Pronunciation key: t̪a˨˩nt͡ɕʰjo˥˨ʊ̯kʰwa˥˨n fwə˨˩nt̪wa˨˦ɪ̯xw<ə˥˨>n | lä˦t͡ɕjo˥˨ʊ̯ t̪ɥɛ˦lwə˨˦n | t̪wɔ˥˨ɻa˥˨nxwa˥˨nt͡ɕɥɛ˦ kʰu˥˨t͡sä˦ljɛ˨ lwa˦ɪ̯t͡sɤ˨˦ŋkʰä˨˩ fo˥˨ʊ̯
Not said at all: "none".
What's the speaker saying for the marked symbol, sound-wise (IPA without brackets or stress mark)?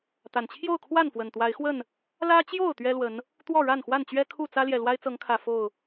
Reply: ə˥˨